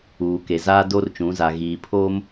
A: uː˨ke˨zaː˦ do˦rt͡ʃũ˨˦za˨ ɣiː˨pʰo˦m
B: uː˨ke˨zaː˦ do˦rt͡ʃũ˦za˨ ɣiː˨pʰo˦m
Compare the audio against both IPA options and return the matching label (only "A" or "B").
A